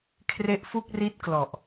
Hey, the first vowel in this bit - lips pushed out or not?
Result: no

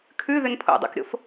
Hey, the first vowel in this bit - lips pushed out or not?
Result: yes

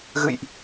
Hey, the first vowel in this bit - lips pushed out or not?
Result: no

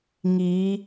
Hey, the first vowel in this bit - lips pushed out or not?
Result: no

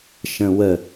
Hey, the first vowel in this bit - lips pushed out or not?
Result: no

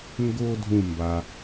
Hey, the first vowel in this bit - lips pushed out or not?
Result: yes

